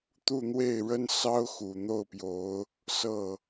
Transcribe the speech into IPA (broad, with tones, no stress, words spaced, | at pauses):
t̪u˥˧n̪we˥˩ɪ̯ɻə˥n sɑ˥ʊ̯xu˨˩n̪o˥˩ʊ̯pjo˧˥ʊ̯ | sɤ˥˩